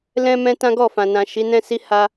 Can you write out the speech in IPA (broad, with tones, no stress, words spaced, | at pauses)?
lɛ̃˦mɛ̃˦ tã˦ɡɔ˦˨fã˨nã˨ ʃi˨˦nɛ̃˦si˦ ha˦